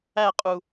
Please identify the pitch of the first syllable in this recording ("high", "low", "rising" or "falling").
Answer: falling